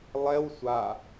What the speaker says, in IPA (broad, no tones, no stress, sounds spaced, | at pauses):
lˠ ɛ w sʷ a